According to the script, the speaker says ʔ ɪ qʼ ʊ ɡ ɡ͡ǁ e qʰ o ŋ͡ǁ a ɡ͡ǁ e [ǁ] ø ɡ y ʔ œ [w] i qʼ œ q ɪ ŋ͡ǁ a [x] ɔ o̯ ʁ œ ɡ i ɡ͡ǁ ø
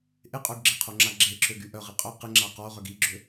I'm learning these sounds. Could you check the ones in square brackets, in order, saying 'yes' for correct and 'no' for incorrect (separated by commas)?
yes, no, no